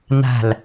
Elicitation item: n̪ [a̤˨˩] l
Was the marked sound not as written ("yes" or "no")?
no